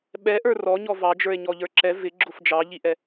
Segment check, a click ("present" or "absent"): present